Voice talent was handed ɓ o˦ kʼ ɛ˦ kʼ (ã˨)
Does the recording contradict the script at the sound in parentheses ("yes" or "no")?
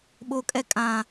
no